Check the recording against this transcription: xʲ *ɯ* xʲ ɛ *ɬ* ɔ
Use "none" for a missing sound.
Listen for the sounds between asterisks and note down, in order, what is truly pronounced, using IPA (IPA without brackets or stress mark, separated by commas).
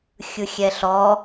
ɯ, ɬ